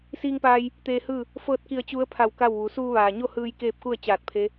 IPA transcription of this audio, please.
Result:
s iː˧ ŋ p aː˧ j | t̪ eː˧ h ɯː˥˨ | f ɤː˧ t̚ k i˧˩ ə̯ t͡ɕ u˧˥ ə̯ pʰ a˧˩ w k a˥˨ w ʋ u˩˧ s uː˧ ʋ aː˩ ɲ o˥˨ h ɯː˧ j k eː˥˨ p̚ k u˥˨ ə̯ t͡ɕ aː˧˩ t̚ pʰ e˧˥

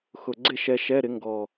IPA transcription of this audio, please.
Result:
x ʊ˨˩ ɡ͡ǀ ɪ˥˨ ʃ ɛ˧ ʃ ɛ˧˥˧ ɾ ɪ˩˥ ŋ ɡ ɔ˨˩

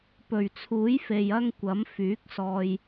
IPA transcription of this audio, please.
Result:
p ɵ˨˩ ɥ t͡sʰ uː˨˥ j f e˨ j ɐ˥ ŋ kʷ ɐ˨˥ m f yː˨˥ k̚ s ɔː˧ j

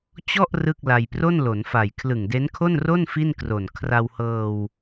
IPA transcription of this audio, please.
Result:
t͡ɕ ɔ˥˩ ʔ r ɯ˥˩ k̚ l a˧ j p r o˥˩ n l o˩˦ n f a˨˩ j kʰ l ɯ˨˩ ŋ d e˦˥ n kʰ o˥˩ n r o˥˩ n f i˥˩ n k r o˨˩ n kʰ r a˧ w h ɤː˧ w

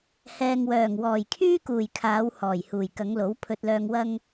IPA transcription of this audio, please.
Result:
h ɛː˨ ŋ w œː˨˩ ŋ w ɔː˨˩ j kʰ yː˥ k uː˨˩ j kʰ aː˨˧ w h ɔː˨˩ j h uː˨˩ j k ɐ˨˧ ŋ l o˨˥ w pʰ ɵ˧ t̚ l œː˧ ŋ w ɐ˥ ŋ

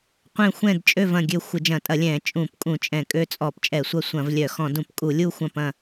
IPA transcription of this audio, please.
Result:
qʷ ɛ̃˦˨ xʷ ɛ̃˦˨ d t͡ʃʼ ø˦˨ v ɐ̃˦˨ ɡʲ ø˦˨ xʷ ɪ˧˩˧ d͡ʒ ɐ̃˧˩˧ tʼ ɐ˧˩˧ lʲ ɛ̃˧˩˧ t͡ʃʼ ũ˧˩˧ p kʼ ũ˧˩˧ t͡ʃʼ ɛ̃˧˩˧ kʼ ø˦˨ t͡sʼ ɔ˧˩˧ p t͡ʃʼ ɛ˧˩˧ sʷ ɐ˦˨ sʷ ɐ̃˧˩˧ v lʲ œ˧˩˧ x ɔ̃˧˩˧ d ũ˧˩˧ p kʼ u˧˩˧ lʲ u˦˨ xʷ ɐ̃˦˨ p ɐ̃˦˨

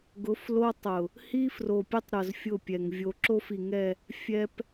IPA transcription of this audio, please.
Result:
ɡ ʊ˨˦ f l o˦ tˤ ʊ˨ | h i˦ f r o˨ pʲ ʊ˦ tˤ ɾ ʊ˨ z fʲ ʊ˦˨ pʲ ɛ˨ ŋ vʲ o˨ ǁ o˦ f i˨ ŋ ɛ˦˨ | fʲ ɛ˦ p

